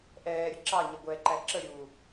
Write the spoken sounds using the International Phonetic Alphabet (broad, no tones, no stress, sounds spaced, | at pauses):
ʔ ɛː ɾʲ ə ǁ ɑ ɲ ʌ ɡʷ ɛː ǃ æ ǁ ə ɾʲ uː